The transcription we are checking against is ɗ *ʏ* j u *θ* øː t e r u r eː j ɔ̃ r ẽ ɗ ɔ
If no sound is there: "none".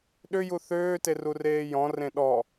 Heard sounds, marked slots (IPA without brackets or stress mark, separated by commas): ʏ, θ